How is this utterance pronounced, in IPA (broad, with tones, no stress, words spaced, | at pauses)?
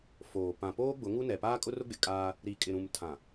foː˨ pã˨ poː˦ ɡ͡bʊ˨˦ŋu˦nɛ˨ paː˦kʼʊ˦rʊ˦ɡ͡bɪ˨ kʼaː˦ | ɾi˨ kʼɪ˨ɾũ˨m tʰã˨